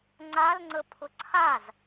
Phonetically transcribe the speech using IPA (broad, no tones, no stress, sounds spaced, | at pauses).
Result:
ŋ͡ǀ a l ŋ͡ǀ ə pʰ ʊ ǀʰ a z